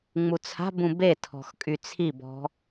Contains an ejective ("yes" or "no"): yes